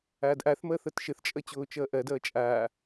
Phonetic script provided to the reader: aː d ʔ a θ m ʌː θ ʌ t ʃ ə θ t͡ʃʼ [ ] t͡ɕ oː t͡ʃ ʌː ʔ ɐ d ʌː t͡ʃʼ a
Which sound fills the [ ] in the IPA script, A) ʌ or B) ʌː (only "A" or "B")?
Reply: A